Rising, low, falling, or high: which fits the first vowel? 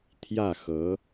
falling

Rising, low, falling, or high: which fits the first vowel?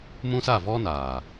high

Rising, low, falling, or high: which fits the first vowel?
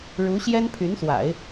rising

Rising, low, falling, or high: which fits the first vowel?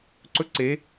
high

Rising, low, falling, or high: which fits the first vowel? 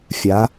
rising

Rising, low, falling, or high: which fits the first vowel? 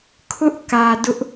high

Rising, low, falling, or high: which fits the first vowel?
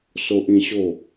high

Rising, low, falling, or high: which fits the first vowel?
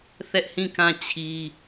high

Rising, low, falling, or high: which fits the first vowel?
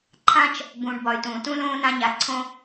high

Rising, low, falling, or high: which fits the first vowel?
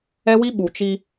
high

